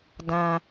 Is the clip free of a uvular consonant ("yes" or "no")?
yes